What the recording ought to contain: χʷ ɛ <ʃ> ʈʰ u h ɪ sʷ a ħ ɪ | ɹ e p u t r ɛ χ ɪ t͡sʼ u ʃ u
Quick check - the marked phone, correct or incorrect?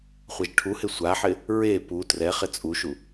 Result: incorrect